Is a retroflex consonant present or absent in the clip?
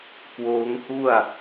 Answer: absent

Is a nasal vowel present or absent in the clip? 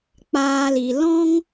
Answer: present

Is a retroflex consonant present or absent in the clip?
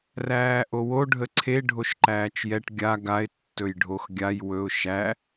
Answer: present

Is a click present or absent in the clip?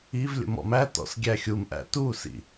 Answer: absent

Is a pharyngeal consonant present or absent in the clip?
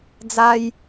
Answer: absent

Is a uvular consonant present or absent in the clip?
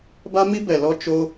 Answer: absent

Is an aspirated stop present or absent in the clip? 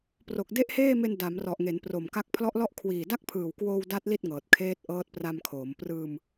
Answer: present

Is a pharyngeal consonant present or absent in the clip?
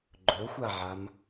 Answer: present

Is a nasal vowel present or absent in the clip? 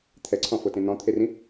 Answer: present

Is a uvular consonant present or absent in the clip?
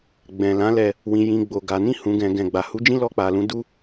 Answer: absent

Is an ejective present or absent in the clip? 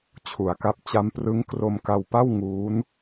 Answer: absent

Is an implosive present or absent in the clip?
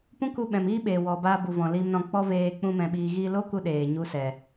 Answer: present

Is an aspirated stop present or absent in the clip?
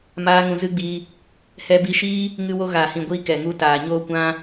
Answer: absent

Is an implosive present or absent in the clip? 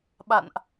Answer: present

